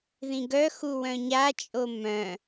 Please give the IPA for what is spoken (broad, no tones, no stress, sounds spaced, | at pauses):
ð ĩ ɡ œ x u w œ̃ ɲ a t͡ʃʼ o m œ̃